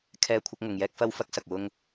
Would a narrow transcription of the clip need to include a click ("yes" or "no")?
no